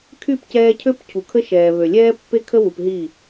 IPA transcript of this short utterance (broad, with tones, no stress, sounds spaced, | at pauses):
kʰ y˦˨ p c ɛː˧ cʰ ø˦ p cʰ u˨ kʰ ə˦ ʃ ɛː˨ β ø˨ lʲ ɛː˦ pː e˦ kʰ ə˦ w u˨ p ɦ i˦˨